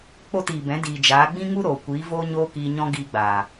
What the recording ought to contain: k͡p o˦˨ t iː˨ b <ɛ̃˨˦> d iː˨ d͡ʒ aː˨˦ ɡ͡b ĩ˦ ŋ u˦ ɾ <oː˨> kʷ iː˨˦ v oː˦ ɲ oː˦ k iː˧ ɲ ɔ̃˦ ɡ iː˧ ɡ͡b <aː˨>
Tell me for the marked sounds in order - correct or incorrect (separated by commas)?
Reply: correct, correct, correct